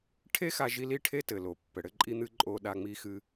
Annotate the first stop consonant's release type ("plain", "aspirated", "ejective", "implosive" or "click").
aspirated